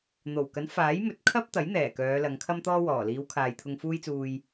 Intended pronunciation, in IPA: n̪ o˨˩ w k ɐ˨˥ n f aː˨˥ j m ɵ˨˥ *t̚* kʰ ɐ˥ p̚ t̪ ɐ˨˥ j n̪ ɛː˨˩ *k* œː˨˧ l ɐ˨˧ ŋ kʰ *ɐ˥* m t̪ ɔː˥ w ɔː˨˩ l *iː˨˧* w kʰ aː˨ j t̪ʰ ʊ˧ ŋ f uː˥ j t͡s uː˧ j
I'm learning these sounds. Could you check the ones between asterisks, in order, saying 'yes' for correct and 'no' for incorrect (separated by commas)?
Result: yes, yes, yes, yes